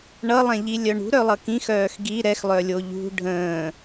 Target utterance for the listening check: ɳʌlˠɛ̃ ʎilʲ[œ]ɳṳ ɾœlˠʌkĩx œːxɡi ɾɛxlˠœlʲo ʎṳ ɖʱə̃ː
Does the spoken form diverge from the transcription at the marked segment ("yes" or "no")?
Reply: no